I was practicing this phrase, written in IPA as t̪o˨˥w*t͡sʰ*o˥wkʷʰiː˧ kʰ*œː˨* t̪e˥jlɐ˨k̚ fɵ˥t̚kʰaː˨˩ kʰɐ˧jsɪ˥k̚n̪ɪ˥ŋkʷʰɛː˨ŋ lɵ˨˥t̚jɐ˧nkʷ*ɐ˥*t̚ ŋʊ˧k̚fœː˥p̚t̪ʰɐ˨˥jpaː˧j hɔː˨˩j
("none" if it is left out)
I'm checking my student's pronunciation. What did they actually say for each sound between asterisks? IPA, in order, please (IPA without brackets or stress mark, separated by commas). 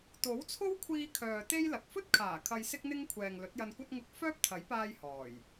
t͡sʰ, œː˨, ɐ˥